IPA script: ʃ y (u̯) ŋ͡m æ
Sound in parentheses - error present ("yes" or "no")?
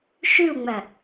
no